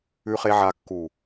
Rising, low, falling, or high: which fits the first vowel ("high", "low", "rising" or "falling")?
low